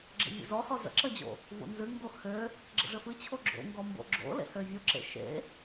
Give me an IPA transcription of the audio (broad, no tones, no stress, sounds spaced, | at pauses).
ɡ͡ǁ ə̰ vʲ ə̰ z ɔ h ɔ z ə̰ ǁ ə d͡ʑ o̰ | v o̰ n z ɨ ŋ ɡ o h ø | ɡ͡ǁ ə̰ ʐ ə f ɨ t͡ɕʰ o ɡ͡ǁ o̰ ŋ ɡ ɔ m b o̰ ɡ͡ǁ o̰ l ḛ h ø vʲ o ǁ ḛ ʃ ḛ